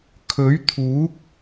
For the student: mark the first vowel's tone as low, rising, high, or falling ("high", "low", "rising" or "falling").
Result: rising